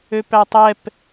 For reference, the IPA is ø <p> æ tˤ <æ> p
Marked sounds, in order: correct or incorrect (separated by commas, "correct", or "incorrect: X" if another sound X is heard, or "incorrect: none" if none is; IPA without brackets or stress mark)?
correct, incorrect: ɛ